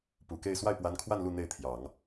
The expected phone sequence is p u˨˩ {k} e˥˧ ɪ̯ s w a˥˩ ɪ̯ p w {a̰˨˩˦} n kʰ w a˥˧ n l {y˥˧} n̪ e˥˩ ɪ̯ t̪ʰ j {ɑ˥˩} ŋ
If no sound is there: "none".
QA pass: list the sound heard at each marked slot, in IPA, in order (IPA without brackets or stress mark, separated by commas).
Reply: k, a˧˥, u˥˧, ɑ˨˩˦